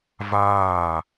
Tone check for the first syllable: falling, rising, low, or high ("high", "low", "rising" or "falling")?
falling